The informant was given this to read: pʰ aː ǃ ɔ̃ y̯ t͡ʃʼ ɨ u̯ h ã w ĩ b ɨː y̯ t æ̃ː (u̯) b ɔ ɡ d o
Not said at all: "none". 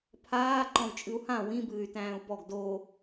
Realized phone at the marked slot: u̯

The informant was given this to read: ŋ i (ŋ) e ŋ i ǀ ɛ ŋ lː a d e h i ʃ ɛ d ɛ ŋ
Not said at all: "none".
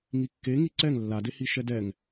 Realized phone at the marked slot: kː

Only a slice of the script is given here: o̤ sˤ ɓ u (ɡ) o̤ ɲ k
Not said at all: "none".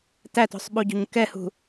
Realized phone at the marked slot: ɟ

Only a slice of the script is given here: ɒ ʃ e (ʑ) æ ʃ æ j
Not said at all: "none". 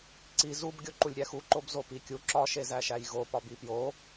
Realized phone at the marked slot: z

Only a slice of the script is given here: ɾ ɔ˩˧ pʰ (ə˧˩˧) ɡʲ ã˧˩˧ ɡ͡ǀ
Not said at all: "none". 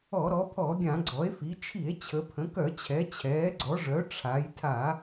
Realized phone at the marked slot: ɔ˧˩˧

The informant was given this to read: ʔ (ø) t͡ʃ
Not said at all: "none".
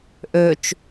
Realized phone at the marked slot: ø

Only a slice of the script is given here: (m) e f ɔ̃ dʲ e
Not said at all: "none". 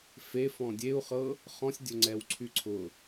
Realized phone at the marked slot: f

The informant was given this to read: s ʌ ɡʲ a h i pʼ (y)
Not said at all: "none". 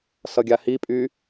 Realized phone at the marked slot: y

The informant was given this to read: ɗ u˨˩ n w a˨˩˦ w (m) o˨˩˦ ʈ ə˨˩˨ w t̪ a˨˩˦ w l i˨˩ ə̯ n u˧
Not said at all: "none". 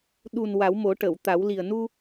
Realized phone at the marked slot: m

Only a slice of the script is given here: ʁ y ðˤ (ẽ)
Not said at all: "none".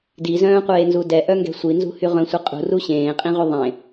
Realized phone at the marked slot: ẽ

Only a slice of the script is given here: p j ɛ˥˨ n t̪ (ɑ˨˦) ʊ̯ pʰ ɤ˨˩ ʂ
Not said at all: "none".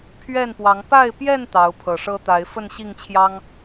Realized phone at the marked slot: ɑ˨˦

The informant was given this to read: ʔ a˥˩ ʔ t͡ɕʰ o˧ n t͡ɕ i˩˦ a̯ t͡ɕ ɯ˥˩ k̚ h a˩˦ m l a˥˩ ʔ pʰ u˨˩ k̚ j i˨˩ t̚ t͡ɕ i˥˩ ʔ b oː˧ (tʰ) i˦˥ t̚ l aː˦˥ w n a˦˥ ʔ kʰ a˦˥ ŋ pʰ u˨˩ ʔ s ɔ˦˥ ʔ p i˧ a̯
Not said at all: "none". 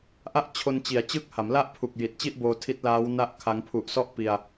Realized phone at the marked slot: tʰ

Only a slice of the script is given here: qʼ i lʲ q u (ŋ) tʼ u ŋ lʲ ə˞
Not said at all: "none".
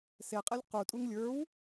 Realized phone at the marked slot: none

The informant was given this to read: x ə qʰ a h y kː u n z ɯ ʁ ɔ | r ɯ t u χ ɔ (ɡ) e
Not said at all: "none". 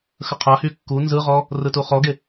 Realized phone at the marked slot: ɡ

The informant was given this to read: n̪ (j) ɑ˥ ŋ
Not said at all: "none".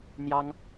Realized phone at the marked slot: j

